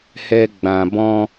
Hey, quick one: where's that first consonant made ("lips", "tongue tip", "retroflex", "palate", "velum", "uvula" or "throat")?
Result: throat